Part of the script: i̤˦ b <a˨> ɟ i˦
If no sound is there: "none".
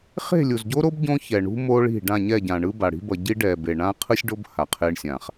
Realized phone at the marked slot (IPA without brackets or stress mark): ʌ˨